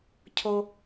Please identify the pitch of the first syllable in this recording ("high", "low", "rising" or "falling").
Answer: high